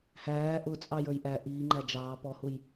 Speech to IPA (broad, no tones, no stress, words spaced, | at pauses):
hæː ʔʊt͡sʼɑ jə˞jʔæ ʔiːŋ͡ǃæ d͡ʒɑː pɔhuj